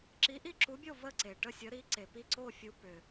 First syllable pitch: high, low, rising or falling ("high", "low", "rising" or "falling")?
rising